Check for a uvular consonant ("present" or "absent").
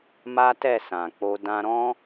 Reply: absent